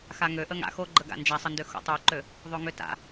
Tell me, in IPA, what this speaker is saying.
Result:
x a ŋ ø ʔ ə ŋ a̰ x o ɡ͡ǃ ə ɡ a̰ n d͡ʒ a sˤ ə n d ø x o̰ tˤ u ǃ ø | ðˤ o ŋ ø t a̰

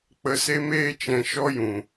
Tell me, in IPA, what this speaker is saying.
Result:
k͡p ə˧ s e˦ m eː˦ t͡ʃ ɛ̃˧ ʃ ɔ˦ j ũ˨

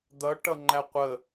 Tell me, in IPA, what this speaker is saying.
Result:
d̪ ʌ ʈ ʌ ŋ͡ǃ æ qʷ ə

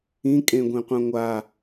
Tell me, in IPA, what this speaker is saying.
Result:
ĩ kʼ ẽ ɡʷ ẽ qʷ ã ŋʷ a

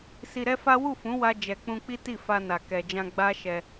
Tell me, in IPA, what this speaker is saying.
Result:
s i˧ ɾ ɛ˦ f a˦ w u˦˨ f ũ˨˦ w a˧ d͡ʒ ɛ˨ k͡p ũ˧ k͡p i˦ t i˦˨ f a˧ n a˨ k ɛ˨ d͡ʒ ã˧ ɡ͡b a˦ ʃ ɛ˧

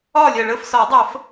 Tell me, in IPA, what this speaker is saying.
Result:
ɒː˥˨ lʲ ɜ˨˩ ɭ əː˥˨ f s ɒ˨˩˦ w dˤ əː˨˩˦ f

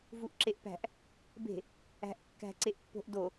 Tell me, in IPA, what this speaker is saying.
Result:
v u ʔ ǁ e ʔ p æ̤ ʔ | b e̤ | æ̤ ʔ kː æ̤ ǀ e ʔ pː o̤ ʔ d o

